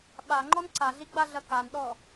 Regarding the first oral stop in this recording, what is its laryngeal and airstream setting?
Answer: implosive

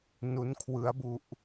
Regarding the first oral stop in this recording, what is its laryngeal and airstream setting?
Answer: aspirated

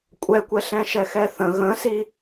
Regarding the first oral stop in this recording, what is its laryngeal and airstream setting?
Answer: ejective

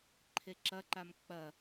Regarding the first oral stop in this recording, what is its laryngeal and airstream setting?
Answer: click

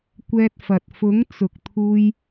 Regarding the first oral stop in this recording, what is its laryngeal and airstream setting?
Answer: plain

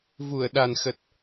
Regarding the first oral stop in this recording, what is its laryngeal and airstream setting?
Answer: implosive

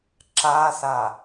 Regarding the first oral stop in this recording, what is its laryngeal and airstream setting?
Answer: click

